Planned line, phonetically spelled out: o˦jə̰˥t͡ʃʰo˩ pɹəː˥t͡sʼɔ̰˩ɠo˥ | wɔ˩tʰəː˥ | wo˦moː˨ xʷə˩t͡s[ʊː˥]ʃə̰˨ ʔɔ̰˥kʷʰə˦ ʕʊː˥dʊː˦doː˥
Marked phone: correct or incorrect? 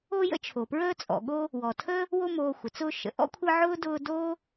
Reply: incorrect